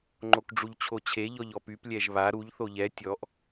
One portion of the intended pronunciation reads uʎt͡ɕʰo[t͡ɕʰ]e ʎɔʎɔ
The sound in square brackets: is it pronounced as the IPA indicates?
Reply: yes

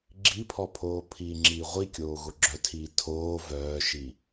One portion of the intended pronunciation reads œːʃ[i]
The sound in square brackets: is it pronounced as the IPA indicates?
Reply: yes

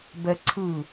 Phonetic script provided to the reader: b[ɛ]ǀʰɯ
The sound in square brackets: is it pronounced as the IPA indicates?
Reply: yes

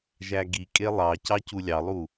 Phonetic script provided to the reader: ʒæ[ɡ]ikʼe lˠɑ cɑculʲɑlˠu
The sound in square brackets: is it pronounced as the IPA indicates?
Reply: yes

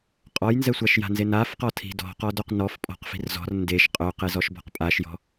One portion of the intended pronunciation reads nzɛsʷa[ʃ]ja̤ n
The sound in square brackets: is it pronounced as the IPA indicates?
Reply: yes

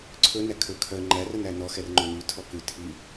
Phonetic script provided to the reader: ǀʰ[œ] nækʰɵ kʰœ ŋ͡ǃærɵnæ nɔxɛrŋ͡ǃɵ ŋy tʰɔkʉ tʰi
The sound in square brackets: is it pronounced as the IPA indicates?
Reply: no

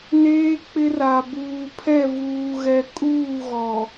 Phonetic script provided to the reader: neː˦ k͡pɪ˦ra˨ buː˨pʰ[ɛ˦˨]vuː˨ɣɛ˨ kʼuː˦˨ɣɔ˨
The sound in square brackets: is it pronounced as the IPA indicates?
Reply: yes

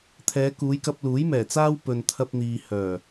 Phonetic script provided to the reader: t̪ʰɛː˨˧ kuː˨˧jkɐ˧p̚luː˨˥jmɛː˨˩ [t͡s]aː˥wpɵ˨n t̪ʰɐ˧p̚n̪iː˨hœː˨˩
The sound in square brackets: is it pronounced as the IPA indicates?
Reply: yes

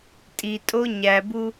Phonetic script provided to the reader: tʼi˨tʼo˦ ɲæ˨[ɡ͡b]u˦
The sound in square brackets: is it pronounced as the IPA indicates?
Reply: no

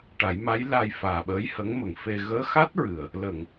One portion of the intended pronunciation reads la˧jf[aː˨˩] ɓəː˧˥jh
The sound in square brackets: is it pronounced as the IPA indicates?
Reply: yes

